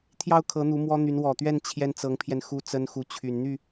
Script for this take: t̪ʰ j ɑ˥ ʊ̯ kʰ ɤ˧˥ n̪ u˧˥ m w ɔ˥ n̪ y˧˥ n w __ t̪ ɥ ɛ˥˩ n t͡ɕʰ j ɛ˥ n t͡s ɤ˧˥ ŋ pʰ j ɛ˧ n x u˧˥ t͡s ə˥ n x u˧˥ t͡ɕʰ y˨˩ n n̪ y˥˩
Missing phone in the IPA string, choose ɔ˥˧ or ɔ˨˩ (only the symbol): ɔ˨˩